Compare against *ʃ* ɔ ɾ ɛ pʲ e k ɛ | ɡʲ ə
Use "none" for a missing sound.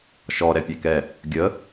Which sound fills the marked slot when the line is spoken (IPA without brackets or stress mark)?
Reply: ʃ